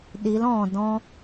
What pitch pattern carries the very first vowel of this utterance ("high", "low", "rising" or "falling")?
rising